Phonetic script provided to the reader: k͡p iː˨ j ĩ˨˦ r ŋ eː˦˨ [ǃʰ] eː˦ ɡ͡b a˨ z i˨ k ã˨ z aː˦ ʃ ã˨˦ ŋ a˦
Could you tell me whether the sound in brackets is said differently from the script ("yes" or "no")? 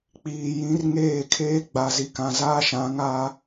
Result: yes